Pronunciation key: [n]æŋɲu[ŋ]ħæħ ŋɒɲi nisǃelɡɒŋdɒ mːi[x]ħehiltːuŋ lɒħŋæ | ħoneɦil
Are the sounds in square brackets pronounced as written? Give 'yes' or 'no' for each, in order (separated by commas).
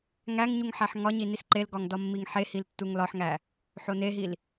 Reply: no, yes, no